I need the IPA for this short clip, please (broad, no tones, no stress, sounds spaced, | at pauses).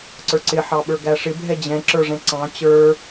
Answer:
ǀ ə˞ ǀ ɪ ħ ɑ ɓ ə˞ ɡ æ ʂ ɪ bʱ ɛ d͡ʑ ɛ̃ ǁ ə˞ ʐ ɛ̃ ǀ ɑ̃ t͡ɕ ə˞